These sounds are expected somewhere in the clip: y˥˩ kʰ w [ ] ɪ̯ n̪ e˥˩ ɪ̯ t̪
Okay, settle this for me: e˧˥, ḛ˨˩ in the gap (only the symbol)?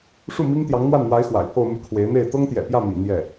e˧˥